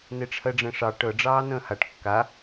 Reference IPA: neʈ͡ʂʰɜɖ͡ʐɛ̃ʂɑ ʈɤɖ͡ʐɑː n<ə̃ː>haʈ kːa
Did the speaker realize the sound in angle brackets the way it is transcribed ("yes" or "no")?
yes